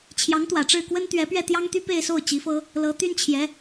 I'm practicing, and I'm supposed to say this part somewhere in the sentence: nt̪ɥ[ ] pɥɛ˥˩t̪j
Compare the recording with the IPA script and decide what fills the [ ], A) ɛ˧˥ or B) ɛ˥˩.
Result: A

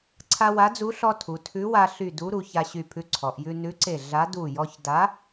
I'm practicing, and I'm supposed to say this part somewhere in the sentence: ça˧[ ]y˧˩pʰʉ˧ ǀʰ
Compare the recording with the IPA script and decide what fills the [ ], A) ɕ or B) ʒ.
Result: A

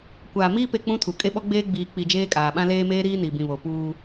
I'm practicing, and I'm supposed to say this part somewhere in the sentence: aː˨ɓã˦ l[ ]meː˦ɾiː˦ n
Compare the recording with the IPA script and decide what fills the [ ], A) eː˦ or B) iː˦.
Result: A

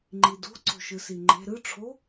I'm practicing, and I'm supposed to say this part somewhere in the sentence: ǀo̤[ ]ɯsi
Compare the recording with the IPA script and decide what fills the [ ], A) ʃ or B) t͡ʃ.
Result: A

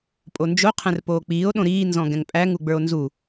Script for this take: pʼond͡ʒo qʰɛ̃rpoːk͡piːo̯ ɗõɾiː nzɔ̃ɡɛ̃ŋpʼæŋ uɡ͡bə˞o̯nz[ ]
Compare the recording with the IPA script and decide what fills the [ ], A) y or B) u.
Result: B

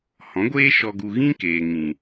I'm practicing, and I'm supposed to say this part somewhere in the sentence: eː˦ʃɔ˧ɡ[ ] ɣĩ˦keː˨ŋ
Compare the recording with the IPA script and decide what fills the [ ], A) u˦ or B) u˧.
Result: B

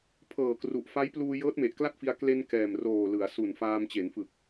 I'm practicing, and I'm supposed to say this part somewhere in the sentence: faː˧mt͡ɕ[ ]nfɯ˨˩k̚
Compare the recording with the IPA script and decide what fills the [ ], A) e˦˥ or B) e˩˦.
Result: B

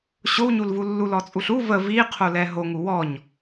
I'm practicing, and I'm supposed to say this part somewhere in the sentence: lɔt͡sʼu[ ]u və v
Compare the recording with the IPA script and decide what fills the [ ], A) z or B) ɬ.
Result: B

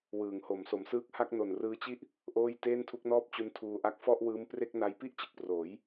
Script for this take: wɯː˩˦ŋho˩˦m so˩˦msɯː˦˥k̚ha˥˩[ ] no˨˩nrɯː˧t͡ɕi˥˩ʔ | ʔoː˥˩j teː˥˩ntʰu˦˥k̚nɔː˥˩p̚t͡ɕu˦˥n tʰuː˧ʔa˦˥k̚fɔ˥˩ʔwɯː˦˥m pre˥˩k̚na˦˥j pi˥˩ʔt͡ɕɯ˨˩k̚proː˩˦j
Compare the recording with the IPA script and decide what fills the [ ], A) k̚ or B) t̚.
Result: A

